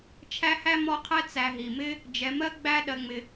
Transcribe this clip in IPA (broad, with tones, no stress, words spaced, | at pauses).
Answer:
t͡ʃʰæ˦hæ˥mɔ˦qʰɛ˦ t͡sæ˨ ɦi˩mɪ˦ | d͡ʒɛ˨mɜ˥ɡ͡bæ˦ ɗɜ˨ŋ͡mɪ˨